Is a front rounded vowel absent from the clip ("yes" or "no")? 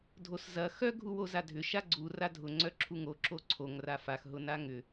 no